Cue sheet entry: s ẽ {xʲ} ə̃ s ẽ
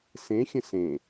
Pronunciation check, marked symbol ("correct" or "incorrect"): correct